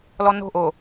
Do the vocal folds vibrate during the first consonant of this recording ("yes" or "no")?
yes